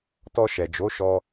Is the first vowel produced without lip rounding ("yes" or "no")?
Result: no